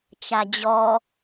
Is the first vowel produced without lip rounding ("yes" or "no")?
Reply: yes